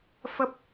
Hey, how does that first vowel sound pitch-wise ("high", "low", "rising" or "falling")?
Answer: high